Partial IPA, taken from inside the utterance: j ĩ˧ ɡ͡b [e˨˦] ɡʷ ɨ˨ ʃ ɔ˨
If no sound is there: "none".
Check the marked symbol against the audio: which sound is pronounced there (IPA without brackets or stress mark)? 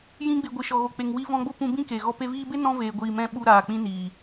e˨